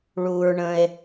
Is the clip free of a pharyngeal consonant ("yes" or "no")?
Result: yes